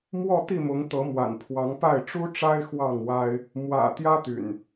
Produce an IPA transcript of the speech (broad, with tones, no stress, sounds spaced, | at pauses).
m w ɔ˥˨ t̪ i˥˨ m ʊ˨˦ ŋ t̪ ɤ˨˦ m w a̰˨˩ n pʰ w ɑ˨˦ ŋ p a˥˨ ɪ̯ ʈ͡ʂ u˦ ʈ͡ʂ a˦ ɪ̯ x w ɑ˥˨ ŋ w a˦ ɪ̯ | m w ä̰˨˩ t̪ j ä˦ t̪ y̰˨˩ n